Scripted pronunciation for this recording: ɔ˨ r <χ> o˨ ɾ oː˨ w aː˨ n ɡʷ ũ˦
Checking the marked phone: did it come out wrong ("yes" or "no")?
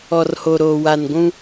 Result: yes